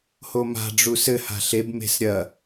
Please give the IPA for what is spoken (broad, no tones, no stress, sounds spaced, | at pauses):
h o m a̤ ɖ͡ʐ u s ɘ h a̤ ɬ e b m e̤ s ɾʲ ɐ